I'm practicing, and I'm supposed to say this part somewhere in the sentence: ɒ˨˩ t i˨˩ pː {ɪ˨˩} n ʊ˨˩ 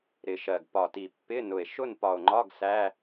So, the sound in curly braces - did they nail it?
no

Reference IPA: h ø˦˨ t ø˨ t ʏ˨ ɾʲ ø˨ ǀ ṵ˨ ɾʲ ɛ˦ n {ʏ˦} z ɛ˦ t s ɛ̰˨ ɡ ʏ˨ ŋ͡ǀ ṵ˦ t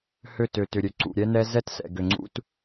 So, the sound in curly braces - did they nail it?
no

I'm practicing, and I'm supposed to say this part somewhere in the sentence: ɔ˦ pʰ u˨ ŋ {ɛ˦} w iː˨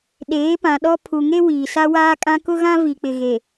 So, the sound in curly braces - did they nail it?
no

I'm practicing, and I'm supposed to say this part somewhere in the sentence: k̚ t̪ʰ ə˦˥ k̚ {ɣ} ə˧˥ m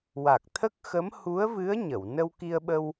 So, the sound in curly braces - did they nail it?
no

